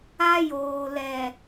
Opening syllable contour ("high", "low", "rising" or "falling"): high